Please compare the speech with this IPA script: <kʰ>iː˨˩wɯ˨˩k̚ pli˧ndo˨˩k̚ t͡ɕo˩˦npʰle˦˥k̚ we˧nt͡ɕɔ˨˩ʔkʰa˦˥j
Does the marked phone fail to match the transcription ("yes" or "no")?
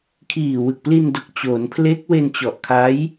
no